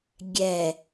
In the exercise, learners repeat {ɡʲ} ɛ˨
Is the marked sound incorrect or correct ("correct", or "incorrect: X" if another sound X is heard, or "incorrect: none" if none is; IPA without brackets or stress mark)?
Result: correct